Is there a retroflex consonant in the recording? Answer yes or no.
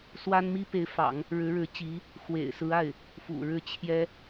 yes